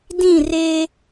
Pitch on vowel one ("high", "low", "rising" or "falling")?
falling